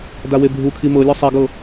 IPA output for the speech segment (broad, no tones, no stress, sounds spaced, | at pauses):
d a w e bʱ u kʰ i m ɤ lʲ ɔ sˤ ɛ ɡ ɤ